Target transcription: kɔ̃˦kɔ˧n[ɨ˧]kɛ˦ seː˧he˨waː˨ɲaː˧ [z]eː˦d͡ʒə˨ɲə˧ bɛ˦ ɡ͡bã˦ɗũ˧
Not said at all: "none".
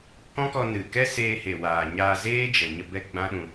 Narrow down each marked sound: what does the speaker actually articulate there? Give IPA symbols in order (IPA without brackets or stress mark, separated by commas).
ɨ˨, z